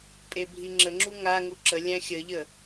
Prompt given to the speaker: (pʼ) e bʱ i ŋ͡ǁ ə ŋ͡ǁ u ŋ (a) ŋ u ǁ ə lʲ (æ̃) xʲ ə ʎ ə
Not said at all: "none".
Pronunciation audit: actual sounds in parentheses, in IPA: pʼ, a, æ̃

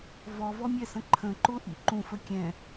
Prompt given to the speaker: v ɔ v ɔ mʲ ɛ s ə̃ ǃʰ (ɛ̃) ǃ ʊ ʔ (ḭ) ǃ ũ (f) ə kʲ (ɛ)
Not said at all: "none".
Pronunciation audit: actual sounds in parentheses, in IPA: ə̃, ḭ, f, ɛ̃

